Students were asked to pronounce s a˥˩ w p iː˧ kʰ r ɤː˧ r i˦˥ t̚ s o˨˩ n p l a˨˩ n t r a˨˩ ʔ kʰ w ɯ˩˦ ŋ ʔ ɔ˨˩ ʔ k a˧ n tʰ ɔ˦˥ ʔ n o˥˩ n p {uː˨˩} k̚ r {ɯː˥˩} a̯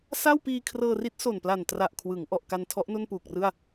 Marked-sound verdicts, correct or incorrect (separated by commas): correct, incorrect